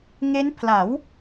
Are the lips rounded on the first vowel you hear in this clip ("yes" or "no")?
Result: no